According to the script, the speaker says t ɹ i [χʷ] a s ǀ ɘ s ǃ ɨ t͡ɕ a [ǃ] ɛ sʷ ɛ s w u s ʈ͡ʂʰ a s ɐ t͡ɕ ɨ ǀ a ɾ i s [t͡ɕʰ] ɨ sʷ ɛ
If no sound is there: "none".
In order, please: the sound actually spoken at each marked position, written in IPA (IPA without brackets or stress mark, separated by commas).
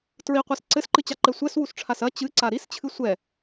qʷ, ǃ, t͡ɕʰ